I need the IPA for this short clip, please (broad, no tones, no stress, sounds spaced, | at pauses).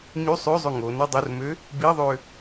ɲ y sˤ ø zˤ ø ŋ o n o dˤ o r m ø | b i ðˤ ø